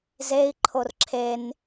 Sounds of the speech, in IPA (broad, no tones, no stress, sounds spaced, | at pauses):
z e i̯ ǃʰ o r ǁʰ e n